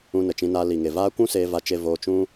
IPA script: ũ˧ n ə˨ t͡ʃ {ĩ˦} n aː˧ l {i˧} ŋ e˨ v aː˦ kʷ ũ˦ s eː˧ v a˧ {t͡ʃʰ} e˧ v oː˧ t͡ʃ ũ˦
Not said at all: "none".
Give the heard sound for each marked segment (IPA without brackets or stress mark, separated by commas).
ĩ˧, i˨, t͡ʃ